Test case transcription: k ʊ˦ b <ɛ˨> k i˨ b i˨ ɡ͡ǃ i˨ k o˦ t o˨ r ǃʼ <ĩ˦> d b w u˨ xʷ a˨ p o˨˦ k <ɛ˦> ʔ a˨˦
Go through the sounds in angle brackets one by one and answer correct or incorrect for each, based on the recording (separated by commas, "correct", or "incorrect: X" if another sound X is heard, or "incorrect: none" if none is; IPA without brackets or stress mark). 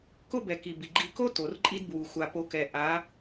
correct, incorrect: i˦, incorrect: ɛ˨